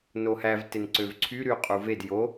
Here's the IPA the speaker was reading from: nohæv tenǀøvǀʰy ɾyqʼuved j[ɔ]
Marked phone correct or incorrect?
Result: incorrect: o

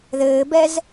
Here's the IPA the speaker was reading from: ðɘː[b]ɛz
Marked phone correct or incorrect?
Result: correct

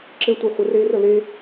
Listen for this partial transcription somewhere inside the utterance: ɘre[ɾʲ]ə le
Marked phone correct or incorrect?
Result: incorrect: r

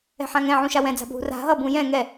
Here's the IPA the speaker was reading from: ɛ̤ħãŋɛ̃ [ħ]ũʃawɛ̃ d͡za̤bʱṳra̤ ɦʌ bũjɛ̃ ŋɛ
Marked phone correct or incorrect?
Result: incorrect: ʕ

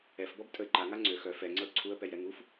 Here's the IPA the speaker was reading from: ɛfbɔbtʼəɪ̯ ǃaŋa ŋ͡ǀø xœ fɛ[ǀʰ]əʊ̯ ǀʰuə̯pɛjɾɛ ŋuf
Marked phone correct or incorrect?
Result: incorrect: ŋ͡ǀ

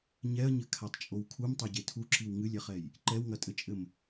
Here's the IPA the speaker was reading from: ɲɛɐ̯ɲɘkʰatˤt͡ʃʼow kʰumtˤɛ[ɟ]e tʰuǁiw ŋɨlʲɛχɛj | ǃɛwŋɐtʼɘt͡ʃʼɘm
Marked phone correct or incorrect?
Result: correct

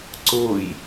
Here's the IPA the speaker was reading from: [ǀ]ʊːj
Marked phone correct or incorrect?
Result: correct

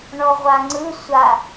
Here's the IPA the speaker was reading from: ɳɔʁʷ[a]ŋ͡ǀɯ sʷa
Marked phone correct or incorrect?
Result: correct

